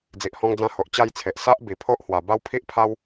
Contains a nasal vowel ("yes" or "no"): yes